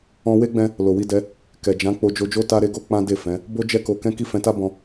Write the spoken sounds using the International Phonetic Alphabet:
ɔ̃˧ w e˦ ɡ͡b ɛ̃˦ | l o˨ w i˧ d ɛ˧ | k ɛ˨ d͡ʒ ã˨˦ k͡p o˧ d͡ʒ o˧ d͡ʒ o˦ t a˦ ɾ e˦ ɡ o˦ k͡p ã˦ d e˦˨ f ɛ̃˨˦ | b o˦ d͡ʒ ɛ˦ k o˧ k ɛ̃˦ k i˦˨ f ɛ̃˧ t a˦ b ɔ̃˧

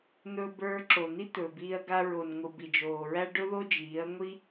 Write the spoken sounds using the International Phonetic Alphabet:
n̪ ɵ˧ b ə˞˧ ǁ o˨ n̪ i˦ t̪ ɵː˨ b iː˧ ɐ̯ ɡ a˧ ɹ o˨ n ŋʷ ɯ˨ b i˨ d͡ʒ oː˨ ɹ æ˦ ɖ ɵ˦ ð o˦ d͡ʒ iː˨˦ ɐ̯ ŋʷ i˦

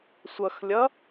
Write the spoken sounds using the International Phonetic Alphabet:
sʷ ʌ x lʲ ʌ

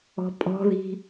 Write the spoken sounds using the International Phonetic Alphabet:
ɔ̤ pʼ ɔ̤ ð i̤

